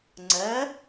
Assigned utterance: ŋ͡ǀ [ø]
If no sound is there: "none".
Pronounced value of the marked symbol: ɛ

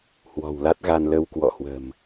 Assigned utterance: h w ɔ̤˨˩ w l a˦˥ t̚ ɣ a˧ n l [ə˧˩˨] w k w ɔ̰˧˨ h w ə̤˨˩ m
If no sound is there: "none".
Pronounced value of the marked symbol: ə˧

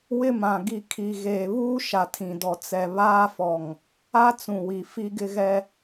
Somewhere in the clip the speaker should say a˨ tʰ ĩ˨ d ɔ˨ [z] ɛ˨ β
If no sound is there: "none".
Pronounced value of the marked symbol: t͡s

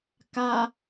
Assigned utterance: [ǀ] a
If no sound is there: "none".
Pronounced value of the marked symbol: k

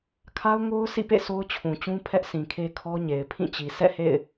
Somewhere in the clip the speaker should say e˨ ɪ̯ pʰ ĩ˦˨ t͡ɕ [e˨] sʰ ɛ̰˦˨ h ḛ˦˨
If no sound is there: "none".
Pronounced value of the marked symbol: i˨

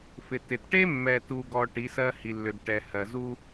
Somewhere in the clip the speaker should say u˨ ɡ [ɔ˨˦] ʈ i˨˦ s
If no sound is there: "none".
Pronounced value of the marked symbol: ɔ˨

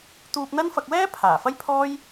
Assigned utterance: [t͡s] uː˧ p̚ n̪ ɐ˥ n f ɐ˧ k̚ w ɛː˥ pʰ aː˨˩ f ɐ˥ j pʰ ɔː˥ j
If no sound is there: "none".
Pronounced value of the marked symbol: t̪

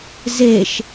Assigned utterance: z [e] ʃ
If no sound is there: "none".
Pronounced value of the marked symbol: e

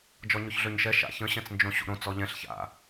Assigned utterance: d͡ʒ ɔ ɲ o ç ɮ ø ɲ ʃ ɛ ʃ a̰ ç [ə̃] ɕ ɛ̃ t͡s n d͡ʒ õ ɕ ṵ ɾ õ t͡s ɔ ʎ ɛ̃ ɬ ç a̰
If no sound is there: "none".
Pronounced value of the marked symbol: ə̃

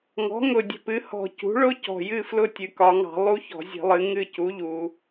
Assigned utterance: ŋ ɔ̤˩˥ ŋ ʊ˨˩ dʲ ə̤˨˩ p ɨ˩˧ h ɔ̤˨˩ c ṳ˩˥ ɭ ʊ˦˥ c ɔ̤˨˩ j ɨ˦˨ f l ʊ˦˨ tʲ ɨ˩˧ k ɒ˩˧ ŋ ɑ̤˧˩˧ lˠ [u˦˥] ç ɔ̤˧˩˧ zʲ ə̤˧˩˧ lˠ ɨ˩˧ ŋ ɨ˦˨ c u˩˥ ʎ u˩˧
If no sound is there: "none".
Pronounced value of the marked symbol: u˦˥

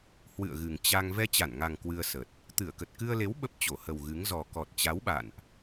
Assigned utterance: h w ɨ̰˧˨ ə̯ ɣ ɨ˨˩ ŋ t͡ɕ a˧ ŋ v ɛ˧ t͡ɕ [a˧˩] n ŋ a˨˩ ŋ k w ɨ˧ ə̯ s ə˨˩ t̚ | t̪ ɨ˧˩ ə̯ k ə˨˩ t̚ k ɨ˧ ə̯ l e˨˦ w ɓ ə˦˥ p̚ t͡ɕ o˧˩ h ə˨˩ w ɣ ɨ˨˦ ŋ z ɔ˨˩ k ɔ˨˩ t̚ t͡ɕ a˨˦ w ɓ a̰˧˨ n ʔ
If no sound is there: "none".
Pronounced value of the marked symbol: a˧˩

